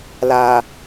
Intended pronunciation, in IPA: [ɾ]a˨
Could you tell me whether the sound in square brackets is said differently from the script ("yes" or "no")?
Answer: yes